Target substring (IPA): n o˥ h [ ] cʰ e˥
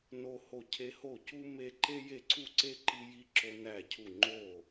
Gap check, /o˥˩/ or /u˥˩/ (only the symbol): o˥˩